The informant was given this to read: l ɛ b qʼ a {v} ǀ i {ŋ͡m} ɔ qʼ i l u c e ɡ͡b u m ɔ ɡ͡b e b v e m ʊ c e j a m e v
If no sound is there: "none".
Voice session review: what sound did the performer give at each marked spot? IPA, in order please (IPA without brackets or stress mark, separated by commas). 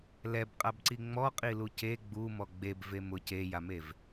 b, ŋ͡m